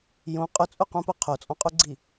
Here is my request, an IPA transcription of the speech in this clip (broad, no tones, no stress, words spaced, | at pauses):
jõ qʼʊt͡sʼuqũpʊ qʰot͡sʼɔ̃qʼuɡ͡ǀi